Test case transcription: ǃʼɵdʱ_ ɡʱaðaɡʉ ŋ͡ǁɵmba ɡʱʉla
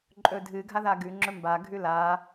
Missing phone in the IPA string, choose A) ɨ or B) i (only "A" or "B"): A